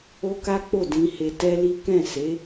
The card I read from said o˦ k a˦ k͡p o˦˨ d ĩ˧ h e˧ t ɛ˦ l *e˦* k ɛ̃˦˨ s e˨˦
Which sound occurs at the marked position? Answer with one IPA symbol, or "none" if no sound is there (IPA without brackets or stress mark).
i˦